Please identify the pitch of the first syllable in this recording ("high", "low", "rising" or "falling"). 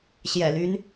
low